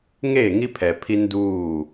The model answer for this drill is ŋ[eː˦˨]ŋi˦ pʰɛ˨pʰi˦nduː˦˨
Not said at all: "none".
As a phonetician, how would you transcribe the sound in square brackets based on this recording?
eː˦˨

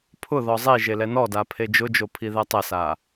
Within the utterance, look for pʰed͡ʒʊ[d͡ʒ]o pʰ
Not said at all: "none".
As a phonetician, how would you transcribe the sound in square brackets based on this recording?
d͡ʒ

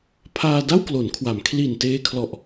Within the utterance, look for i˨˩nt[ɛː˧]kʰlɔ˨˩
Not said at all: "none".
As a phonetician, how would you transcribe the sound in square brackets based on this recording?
eː˧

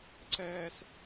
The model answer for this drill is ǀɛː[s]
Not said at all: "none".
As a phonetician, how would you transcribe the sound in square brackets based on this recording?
s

